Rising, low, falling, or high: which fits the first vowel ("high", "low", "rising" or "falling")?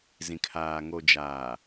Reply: low